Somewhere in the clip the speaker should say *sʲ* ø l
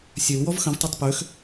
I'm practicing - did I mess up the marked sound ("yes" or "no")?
no